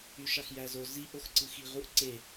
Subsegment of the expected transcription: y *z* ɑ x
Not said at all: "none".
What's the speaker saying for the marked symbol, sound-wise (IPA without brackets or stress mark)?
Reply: ʃ